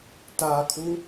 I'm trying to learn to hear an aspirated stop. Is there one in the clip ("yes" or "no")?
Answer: yes